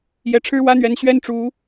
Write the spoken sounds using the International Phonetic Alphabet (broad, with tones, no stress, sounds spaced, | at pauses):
j ɛ˧˥ ʈ͡ʂʰ ɻ̩˥ w ä˥ n̪ ɥ ɛ˧˥ n ɕ ɥ ɛ˥ n ʈ͡ʂ u˧˥